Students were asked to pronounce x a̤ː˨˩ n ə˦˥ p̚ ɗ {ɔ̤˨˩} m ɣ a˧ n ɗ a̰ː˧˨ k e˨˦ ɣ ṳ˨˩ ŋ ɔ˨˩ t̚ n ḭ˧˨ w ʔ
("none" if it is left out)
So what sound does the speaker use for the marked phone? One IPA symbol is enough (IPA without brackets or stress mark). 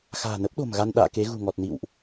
o̤˨˩